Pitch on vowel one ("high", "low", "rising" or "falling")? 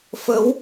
rising